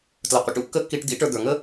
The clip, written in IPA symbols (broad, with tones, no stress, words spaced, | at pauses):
tlʌ˩qʷə̰˧ ʈṵ˥kːə˥kːi˧ʈ d̪ḭ˥ʈə˞˧ d̪ə˞˩ŋə˥